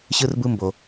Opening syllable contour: high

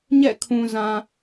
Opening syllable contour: falling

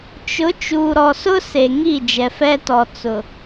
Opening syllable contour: rising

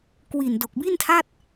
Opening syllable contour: low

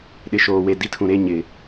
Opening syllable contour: low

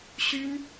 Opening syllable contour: high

